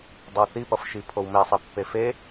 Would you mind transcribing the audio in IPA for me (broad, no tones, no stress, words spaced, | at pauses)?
dˤʌwθi pʌfʃipʰowme sˤipːefe